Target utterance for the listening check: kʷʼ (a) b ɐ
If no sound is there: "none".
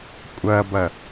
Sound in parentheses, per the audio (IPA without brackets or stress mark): ɐ